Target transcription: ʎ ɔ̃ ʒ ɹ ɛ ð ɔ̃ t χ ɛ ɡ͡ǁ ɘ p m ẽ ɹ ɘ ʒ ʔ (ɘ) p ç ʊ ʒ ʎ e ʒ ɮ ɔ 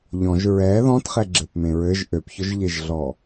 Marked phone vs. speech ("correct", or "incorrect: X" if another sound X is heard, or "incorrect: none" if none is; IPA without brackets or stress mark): incorrect: ø